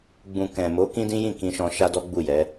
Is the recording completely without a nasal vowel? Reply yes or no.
no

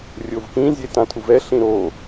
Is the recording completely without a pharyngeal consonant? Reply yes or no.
yes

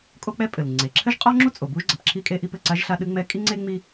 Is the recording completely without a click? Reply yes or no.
no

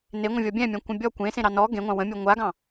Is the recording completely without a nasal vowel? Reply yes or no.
no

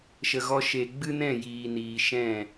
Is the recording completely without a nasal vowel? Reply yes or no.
no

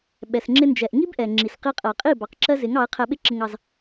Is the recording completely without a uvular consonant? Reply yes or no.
no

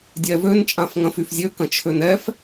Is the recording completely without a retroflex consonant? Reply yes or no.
yes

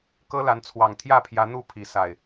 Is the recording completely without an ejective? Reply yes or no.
yes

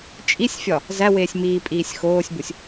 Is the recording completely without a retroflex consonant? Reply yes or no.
yes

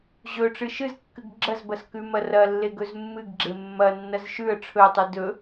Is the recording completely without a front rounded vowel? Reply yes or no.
yes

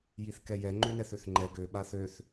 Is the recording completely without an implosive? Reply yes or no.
no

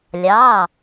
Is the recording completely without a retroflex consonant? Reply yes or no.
yes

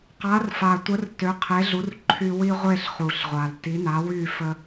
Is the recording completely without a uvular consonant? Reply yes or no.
no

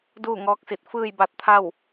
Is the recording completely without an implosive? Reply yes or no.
yes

